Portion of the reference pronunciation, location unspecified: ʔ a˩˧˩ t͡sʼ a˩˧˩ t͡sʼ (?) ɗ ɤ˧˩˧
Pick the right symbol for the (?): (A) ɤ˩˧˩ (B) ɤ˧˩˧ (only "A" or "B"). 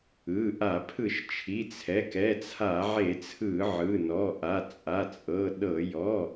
A